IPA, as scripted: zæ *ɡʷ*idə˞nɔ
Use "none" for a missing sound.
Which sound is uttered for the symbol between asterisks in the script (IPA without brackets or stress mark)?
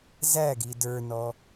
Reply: ɡ